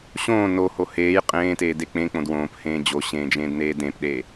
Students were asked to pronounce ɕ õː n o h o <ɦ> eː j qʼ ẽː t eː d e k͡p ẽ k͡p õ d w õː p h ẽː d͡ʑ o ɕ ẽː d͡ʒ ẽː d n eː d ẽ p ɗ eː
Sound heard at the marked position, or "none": h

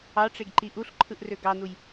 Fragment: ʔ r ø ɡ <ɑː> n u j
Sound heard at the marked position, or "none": ɑ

